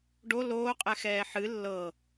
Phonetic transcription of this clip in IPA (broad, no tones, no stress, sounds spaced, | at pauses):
ɖ o l oː qʼ ɛ x ɛː ħ ɨ lː ɤ